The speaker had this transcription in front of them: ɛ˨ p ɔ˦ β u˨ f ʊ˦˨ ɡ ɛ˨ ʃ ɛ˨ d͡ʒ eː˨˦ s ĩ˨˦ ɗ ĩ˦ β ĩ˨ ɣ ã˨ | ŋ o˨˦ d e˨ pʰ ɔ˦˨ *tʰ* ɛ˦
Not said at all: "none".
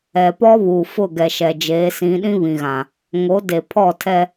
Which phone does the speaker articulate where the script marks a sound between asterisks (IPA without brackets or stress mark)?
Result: tʰ